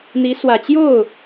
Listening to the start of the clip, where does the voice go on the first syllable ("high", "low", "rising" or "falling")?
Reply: rising